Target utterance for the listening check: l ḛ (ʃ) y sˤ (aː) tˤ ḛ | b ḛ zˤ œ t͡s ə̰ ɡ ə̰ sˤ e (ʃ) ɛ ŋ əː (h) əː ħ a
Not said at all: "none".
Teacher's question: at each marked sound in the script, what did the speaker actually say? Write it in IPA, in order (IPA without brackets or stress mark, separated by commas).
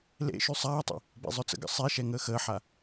ʃ, aː, ʃ, x